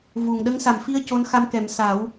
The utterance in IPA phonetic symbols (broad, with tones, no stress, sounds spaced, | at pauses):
v u˨˩ ŋ ɗ ə˧˥ ŋ s a˨˩ m f i˧ ə̯ c o˧˥ n x a˧ m k ɛ˨˩˦ m s a˨˩˦ w